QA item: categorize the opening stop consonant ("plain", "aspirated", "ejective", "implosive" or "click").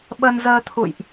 implosive